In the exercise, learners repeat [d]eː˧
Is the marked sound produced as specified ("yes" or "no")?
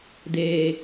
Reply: yes